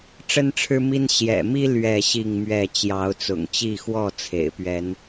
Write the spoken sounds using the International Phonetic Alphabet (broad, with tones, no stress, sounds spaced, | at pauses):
ʈ͡ʂ ə˦ n ʈ͡ʂʰ ɻ̩˦ m i˦ n ɕ j ɛ̰˨˩ m i˦ l ɥ ɛ˥˨ ɕ i˥˨ ŋ m ɥ ɛ˥˨ t͡ɕ j ɑ˨˦ ʊ̯ t͡s ʊ̰˨˩ ŋ t͡ɕ i˥˨ x w ɔ˥˨ t͡sʰ ḛ˨˩ ɪ̯ p ɥ ɛ˨˦ n